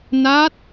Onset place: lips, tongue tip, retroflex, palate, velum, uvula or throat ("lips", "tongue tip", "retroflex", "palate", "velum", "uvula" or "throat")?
tongue tip